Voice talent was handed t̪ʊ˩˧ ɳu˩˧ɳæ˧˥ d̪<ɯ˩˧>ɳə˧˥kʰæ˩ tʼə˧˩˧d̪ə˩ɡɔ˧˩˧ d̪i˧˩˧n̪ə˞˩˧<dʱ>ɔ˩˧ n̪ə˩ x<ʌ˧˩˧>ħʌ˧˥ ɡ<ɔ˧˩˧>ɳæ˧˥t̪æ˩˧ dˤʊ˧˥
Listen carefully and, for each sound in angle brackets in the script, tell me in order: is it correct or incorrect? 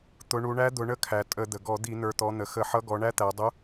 incorrect: ʊ˩˧, incorrect: t̪, incorrect: ə˧˩˧, incorrect: ɔ˩˧

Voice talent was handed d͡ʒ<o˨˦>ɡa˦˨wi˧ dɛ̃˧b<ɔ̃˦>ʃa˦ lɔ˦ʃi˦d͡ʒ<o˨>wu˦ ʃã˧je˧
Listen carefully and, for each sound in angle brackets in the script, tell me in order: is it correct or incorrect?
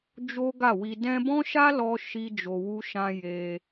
incorrect: o˦, correct, incorrect: o˧

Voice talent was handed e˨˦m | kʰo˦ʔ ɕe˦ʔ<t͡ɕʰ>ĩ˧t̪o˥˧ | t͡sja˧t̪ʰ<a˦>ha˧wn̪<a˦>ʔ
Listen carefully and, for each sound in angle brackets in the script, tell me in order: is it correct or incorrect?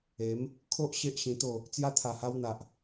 incorrect: ɕ, incorrect: a˨˩, incorrect: a˨

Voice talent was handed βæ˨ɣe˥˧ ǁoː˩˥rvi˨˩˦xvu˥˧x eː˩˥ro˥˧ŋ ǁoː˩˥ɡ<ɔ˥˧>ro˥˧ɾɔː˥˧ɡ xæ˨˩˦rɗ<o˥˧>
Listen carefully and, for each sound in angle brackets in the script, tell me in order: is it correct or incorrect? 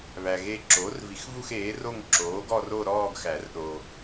correct, incorrect: o˨

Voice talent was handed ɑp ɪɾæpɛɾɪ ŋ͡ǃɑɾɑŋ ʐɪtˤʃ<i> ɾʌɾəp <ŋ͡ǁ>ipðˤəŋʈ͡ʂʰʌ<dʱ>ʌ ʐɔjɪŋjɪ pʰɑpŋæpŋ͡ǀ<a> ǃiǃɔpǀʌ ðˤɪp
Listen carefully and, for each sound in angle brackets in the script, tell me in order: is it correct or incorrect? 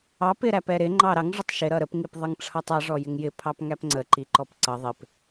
incorrect: ɪ, incorrect: ŋ, incorrect: tˤ, incorrect: ə

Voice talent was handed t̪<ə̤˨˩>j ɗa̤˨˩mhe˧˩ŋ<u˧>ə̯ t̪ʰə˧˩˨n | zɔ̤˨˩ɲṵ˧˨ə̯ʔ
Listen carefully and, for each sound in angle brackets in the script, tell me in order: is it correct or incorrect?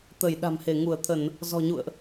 incorrect: ə˧˩, incorrect: u˧˩

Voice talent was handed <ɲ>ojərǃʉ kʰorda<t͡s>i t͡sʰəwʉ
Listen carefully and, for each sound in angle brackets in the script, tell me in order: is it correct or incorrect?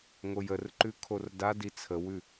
incorrect: ŋ, incorrect: d

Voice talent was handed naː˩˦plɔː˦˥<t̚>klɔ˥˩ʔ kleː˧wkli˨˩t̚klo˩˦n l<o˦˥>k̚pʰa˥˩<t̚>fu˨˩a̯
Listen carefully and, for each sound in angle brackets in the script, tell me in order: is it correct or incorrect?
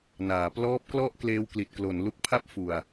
incorrect: p̚, incorrect: u˦˥, incorrect: p̚

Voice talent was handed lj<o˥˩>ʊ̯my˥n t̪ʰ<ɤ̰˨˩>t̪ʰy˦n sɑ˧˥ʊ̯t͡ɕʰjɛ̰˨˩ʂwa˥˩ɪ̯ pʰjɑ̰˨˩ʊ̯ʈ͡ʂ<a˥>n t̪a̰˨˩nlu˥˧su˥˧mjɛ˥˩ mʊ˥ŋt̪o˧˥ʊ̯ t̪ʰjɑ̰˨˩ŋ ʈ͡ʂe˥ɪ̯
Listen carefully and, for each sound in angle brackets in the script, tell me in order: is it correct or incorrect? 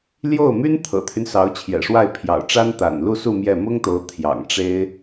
correct, correct, correct

